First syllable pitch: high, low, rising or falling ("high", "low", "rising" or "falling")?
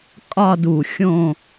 falling